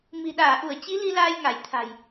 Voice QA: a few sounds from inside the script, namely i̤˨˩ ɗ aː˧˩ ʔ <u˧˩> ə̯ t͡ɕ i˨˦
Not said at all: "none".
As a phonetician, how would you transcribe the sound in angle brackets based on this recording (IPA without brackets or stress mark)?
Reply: u˧˩